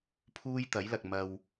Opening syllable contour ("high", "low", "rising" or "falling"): high